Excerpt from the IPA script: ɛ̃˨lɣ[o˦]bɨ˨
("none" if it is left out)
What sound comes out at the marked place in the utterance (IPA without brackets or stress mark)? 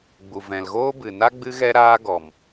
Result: oː˦